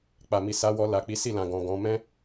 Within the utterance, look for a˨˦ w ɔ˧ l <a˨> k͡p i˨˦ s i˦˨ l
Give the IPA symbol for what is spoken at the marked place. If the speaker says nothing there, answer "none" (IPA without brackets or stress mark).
a˨